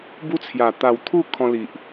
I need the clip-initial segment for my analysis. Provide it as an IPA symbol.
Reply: b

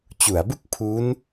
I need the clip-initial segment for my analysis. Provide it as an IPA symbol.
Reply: t͡ɕ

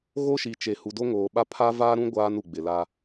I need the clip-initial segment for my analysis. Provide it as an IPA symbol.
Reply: ɣ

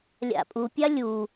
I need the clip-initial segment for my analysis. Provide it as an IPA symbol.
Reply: lʲ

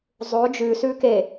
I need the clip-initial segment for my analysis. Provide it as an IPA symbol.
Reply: zˤ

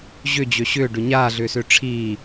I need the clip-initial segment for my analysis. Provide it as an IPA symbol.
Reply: ʑ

